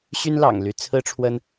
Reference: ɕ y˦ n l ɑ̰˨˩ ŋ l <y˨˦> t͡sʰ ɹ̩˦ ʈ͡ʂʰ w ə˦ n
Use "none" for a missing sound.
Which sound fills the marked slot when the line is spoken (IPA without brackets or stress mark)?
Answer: y˨˦